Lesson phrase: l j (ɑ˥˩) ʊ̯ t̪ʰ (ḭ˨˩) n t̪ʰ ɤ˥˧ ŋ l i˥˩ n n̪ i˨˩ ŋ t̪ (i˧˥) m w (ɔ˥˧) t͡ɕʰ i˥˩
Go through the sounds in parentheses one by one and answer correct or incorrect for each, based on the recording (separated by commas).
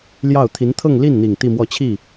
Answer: correct, incorrect, incorrect, correct